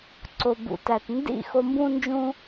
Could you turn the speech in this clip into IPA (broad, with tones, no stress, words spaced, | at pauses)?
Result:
ǀo˨bṵ˨ tæ˨tndḭ˦˨ xo˧mbũ˦nd͡ʒũ˦